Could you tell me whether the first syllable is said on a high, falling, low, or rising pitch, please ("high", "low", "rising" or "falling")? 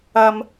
high